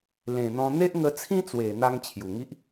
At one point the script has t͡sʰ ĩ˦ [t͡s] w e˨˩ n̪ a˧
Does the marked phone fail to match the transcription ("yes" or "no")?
no